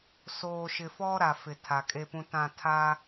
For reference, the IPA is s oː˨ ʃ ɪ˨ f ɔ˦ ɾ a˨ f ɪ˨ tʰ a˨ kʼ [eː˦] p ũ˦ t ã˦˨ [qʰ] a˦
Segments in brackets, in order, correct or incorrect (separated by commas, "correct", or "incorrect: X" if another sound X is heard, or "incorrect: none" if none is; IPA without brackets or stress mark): incorrect: e˦, incorrect: tʰ